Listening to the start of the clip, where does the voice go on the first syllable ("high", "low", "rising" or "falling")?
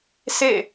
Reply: falling